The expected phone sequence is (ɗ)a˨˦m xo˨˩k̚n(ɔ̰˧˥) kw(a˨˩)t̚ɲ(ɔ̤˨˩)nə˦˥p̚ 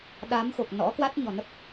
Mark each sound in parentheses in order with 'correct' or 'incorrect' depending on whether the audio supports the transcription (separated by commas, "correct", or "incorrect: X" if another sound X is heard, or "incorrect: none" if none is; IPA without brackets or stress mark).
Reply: correct, correct, incorrect: a˦˥, correct